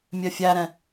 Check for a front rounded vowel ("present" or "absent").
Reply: present